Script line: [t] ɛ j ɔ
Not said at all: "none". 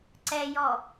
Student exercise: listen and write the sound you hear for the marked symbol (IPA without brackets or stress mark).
ǀ